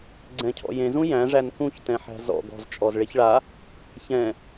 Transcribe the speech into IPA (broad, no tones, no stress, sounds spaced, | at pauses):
ɡ͡ǀ ɛ̃ cʰ ɔ̰ j ẽ z ũ j æ̃ ʐ æ n k ũ ç t ɛ̃ ħ æ̤ z ɔ̰ ɡ ɔ̤ z t͡ʃʼ ɔ z ɭ e ç ɭ a | ç ɛ̃